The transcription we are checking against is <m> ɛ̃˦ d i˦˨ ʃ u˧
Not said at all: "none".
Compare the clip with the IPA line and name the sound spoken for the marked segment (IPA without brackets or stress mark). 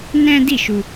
n